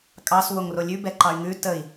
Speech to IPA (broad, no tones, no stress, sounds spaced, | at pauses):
kʼ ɑ s w o ŋ r o lʲ ʉ b ɛ ǃ ɑ y̯ ŋ ʉ t ə i̯